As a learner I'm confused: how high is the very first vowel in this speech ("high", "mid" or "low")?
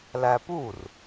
low